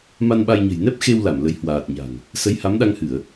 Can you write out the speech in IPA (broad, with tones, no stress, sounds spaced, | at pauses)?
m a˧ n ɓ a˧ j ɲ ə̤˨˩ j n ɛ˦˥ p̚ x e˧ w l a˧˩ m l ə˨˦ j h w aː˨˩ t̚ ɲ a̤˨˩ ŋ | s ə˨˦ j h a˨˦ m ɗ a˧ ŋ h ɨ˧˩˨ ə̯